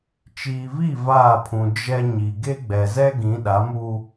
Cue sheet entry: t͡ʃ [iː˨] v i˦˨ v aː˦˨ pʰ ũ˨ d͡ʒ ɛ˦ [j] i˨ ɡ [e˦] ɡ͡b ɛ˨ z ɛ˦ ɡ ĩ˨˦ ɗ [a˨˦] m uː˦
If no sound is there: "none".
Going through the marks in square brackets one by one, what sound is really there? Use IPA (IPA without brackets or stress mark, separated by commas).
iː˨, ɲ, e˦, a˨˦